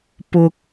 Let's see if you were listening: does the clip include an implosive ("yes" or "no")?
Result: no